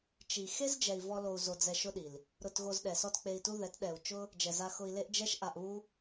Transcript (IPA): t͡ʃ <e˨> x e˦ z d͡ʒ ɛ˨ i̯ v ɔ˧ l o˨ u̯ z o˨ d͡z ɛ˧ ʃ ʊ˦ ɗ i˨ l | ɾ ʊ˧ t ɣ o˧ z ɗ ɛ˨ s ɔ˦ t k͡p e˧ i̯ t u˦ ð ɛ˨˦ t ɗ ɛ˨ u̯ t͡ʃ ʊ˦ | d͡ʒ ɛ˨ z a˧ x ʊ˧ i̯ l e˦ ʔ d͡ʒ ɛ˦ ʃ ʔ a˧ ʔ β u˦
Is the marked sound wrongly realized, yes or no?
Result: yes